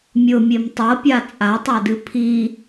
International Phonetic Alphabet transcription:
mʲ ʊ mʲ e m tˤ ɤ pʲ a t͡sʼ a tˤ ɛ d ɨ pʰ i

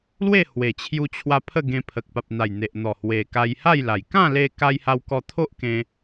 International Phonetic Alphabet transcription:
l w e˥˧ h w e˨˩ t͡ɕʰ j u˧ t͡ɕʰ w a˧ pʰ ə˥˧ ɡ ẽ˧ pʰ ə˨ k̚ p a˨ p̚ n̪ a˨˩ j n̪ e˨ ʔ n̪ ɔ˨˩ h w e˨˩ k a˧ j h a˥˧ j l a˨˩ j k ã˥˧ l e˧ k a˧ j h a˧ w k ɔ˧ t̪ʰ o˦ ʔ k ẽ˧

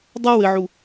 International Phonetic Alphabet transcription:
dˤ a w ɘ ʕ u

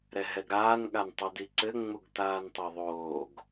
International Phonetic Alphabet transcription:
ɾ ɛ ɦ ɛ ɡ ɾ aː n ɠ a n tˤ o d i ǀ ɘ ŋ͡m u ɡ t aː n tˤ o ðˤ oː ɡ

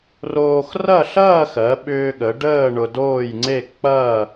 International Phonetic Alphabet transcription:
r oː˧ x r ɐ˥˧ ɬ ɐː˥˧ x ɜ˩˧ ɓ ʏː˧ ɠ ə˩˧ ɖ əː˥˧ ɳ ʊ˧ d oː˥˧ j ŋ͡ǀ e˥˧ k͡p ɐː˥˧

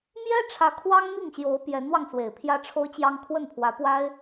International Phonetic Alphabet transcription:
m j ɛ˥ ʈ͡ʂʰ ä˧˥ kʰ w ɑ˥ ŋ n̪ i˥˩ ŋ ɕ j o˧˥ ʊ̯ p j ɛ˧˥ n w ɑ˧ ŋ s w e˨˩ ɪ̯ pʰ j ä˥ ʈ͡ʂʰ o˥ ʊ̯ t͡ɕ j ɑ˥ ŋ kʰ w ə˥˩ n pʰ w ä˧˥ p w a˥ ɪ̯

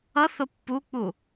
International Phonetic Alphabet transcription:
ʌ θ ʊ pː u k͡p u

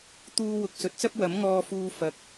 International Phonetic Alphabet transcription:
t̪ uː˥ w ʊ˧ k̚ s ɵ˨ t̚ t͡s ɐ˥ p̚ w ɐ˨˥ m ŋ ɔː˧ f uː˧ f ɐ˨ k̚

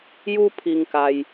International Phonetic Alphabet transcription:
j u˦ pʰ i˧ ŋ k a˧ j

